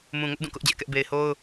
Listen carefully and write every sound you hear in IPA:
m ũ˨ ŋ ʊ˦ ʔ d ũ˦˨ k ʊ˦ ʔ d͡ʑ ɛ˦ ʔ k ɛ˦ ʔ b e˨ ɪ̯ h o˦ ʊ̯

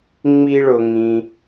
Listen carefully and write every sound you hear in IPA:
ŋ͡m i˦ ɭ ʊ˧ ŋ ĩ˧

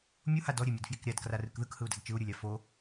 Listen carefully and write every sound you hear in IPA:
mʲ u h a d ɔ ɾʲ e mʲ e d f j i k ɾʲ a d k r a r ɯ k ð ɯ k h ɯ u̯ d a d t͡ʃ ɯ u̯ ɾʲ ɯ lʲ a f o

